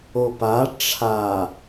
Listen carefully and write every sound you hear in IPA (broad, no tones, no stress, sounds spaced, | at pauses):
o p a ʈ͡ʂʰ a